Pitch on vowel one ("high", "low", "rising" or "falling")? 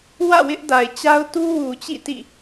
falling